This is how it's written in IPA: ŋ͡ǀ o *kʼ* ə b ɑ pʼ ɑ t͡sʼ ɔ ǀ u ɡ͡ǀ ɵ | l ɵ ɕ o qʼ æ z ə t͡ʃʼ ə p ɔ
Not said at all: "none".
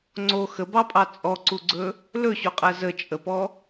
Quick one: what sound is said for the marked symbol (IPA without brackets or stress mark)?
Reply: x